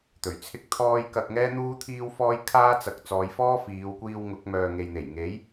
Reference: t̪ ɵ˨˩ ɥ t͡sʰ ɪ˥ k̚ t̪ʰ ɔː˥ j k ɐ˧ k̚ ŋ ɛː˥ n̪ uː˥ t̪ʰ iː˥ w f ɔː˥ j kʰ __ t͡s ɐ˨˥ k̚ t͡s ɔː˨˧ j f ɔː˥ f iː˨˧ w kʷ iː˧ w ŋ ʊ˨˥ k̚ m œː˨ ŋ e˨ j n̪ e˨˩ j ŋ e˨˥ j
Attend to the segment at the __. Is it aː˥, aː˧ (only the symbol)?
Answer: aː˥